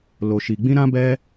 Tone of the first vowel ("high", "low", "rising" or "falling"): low